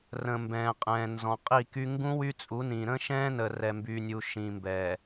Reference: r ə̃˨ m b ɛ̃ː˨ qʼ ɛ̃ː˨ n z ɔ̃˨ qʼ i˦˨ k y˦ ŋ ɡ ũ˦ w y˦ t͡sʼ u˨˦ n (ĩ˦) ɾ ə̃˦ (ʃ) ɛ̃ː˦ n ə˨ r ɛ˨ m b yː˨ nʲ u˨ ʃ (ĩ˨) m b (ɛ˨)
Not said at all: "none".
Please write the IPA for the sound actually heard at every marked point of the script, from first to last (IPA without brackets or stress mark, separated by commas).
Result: ĩ˨, ʃ, ĩ˨, ɛ˨